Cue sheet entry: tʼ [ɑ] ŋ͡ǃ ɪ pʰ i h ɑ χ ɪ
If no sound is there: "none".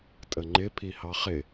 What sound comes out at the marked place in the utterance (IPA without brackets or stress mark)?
ə